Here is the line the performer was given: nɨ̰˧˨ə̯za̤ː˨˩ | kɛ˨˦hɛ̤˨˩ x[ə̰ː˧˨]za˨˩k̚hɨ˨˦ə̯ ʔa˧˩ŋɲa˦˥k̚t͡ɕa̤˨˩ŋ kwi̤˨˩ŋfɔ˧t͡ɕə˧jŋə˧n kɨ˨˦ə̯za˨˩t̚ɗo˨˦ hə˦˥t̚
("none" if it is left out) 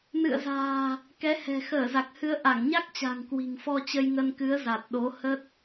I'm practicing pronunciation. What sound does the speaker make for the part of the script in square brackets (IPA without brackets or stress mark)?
əː˧˩